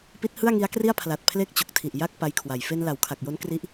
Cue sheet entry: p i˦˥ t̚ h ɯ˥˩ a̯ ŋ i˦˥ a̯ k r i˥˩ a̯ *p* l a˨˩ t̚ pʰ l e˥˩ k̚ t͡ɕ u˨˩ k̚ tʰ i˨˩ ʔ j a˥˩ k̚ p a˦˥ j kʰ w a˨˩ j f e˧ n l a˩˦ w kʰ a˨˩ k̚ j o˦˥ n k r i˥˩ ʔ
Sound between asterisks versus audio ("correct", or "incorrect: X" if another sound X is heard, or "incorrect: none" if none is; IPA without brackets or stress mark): incorrect: pʰ